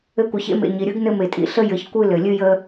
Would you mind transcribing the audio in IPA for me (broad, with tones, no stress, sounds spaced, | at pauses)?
ɘ˦ kʷ ɘ˨ ç ḛ˥ m ḛ˨ ɲ i˩ ɾʲ ɯ˦ ɡ n ɘ˦ m e˩ tʼ ḭ˨ ɬ ə˥ j ɘ˨ ç kʷ ɨ˦ l ɘ˩ lʲ ɨ˥ j ə˦